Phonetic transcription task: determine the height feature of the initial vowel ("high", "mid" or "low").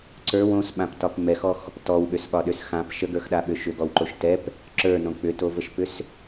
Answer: mid